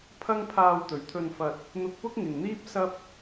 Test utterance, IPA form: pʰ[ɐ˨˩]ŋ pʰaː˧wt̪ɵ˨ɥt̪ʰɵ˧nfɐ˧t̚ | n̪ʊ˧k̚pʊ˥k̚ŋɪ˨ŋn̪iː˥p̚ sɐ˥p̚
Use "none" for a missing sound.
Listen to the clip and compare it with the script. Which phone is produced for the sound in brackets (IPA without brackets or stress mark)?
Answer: ɐ˥